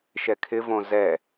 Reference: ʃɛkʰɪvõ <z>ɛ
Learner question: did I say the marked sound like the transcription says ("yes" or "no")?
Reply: yes